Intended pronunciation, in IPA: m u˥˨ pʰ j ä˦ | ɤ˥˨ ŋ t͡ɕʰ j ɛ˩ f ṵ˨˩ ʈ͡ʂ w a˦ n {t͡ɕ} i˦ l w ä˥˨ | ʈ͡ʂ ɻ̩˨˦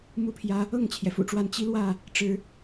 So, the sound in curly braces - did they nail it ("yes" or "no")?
yes